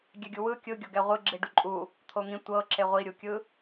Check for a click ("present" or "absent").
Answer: present